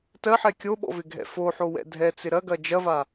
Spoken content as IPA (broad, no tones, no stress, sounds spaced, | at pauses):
t ɜ ħ ɛ kʲ o ɓ ɔ̰ v ɪ ɡʱ ɛ̰ f o ħ o w ɛ̰ dʱ ɛ t͡s ɪ ɾ ɐ ɡ ɐ d͡ʒ ɐ v a